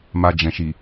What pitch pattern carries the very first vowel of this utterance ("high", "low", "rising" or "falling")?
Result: low